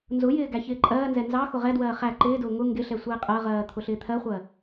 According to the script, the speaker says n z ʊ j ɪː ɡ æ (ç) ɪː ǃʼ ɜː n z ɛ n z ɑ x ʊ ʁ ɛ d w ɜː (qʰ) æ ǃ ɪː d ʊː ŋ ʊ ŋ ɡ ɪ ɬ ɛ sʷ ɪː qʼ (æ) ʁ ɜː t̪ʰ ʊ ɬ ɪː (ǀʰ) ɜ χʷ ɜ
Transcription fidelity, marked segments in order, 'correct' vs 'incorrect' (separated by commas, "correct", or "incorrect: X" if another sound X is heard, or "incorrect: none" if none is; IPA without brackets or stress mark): correct, incorrect: χ, incorrect: ɜ, incorrect: t̪ʰ